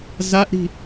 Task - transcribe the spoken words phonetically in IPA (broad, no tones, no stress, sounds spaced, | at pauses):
z a ʔ ɾ i̤